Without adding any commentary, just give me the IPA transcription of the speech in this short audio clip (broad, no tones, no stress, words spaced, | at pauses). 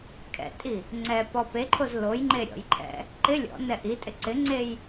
kʰɛ̰tʼi | ŋ͡ǀɛ pɔpeǃʰoz lojŋ͡ǃe ɾʲɔ̰jǃʰɛ̰ | ǃɪ lʲɔ̰ nɛʔitʼɪ ǀɪŋ͡ǀej